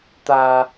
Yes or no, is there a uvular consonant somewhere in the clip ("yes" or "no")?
no